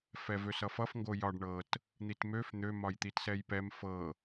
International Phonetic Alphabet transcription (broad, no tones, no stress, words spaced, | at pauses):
fɛvøsʌfʌf ŋɡojɒɖ ɳɤt | n̪itmøf n̪ø mɒjt̪itsɛjpɛm fɤ